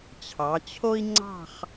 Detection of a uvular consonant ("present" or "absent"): present